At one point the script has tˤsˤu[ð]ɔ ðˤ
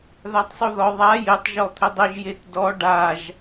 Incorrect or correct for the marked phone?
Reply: correct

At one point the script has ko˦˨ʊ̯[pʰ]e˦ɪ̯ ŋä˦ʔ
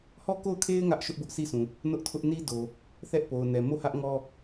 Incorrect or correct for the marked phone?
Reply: incorrect: kʰ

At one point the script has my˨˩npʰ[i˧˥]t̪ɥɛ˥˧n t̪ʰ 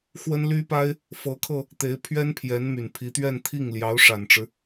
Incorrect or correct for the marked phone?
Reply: correct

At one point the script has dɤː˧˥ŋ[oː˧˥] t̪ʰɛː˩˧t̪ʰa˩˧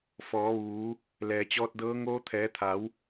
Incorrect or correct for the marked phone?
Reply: correct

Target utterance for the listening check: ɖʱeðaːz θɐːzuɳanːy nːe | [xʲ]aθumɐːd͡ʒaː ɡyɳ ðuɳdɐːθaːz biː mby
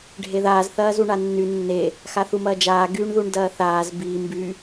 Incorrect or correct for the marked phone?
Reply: incorrect: x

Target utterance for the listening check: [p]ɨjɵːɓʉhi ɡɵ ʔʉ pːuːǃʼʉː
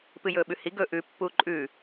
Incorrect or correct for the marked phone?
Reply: correct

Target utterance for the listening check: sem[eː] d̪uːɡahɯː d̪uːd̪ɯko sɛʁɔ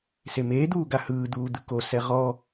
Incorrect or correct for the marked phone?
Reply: correct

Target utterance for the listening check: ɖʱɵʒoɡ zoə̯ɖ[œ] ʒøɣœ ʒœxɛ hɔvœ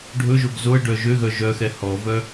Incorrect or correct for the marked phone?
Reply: correct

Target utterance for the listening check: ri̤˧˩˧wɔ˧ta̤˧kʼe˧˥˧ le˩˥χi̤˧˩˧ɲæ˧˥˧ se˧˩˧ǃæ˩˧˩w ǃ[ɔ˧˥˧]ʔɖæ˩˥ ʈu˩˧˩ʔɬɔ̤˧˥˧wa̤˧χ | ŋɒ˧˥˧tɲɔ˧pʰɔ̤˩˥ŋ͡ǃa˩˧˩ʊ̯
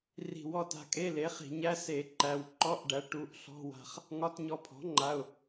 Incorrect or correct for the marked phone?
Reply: correct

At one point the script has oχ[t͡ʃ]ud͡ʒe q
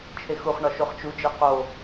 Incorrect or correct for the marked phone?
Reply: correct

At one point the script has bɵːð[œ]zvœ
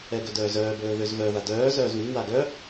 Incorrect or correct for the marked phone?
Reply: incorrect: ø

